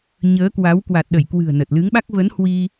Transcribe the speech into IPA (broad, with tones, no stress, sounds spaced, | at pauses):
ɲ əː˨˦ k w a˨˦ w k w a˨˩ t̚ ɗ ə˧˩ j k w ɨ̤˨˩ ə̯ n ə˨˩ t̚ l ɨ˨˦ ŋ ɓ a˦˥ k̚ v ə˨˦ n h w i˧